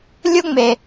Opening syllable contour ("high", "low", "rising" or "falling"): high